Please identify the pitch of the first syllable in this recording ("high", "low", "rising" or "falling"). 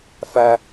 high